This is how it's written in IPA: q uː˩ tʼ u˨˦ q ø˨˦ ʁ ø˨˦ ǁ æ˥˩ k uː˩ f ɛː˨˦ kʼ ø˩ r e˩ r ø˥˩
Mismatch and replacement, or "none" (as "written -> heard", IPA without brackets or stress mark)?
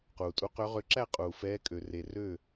k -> qʼ